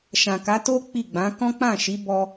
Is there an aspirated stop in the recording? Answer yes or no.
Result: no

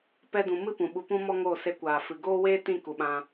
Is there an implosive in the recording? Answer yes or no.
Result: yes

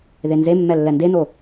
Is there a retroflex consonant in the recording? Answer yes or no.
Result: no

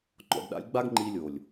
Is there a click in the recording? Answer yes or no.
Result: yes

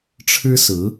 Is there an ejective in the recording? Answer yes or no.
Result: no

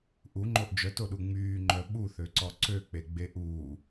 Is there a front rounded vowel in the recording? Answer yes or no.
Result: yes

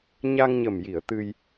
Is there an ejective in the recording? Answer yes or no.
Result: no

